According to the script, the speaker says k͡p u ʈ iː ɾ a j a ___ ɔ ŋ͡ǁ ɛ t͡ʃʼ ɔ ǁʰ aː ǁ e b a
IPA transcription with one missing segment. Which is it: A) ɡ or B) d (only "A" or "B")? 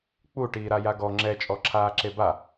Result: A